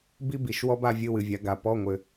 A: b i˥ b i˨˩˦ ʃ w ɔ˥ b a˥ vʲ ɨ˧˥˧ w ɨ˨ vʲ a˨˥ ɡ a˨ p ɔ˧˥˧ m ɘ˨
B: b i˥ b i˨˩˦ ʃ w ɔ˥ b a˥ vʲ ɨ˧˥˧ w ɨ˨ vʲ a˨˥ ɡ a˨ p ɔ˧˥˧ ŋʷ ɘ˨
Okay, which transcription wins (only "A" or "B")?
B